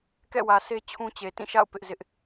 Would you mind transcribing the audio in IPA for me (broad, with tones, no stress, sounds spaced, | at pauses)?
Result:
k ɛ̰˦˨ w ä˨ s e˦ t͡ɕʰ ũ˦ t͡ɕ e˨ t ĩ˦˨ ʃ a̰˦˨ ʊ̯ p ɪ˦ ʔ z ɪ˦ ʔ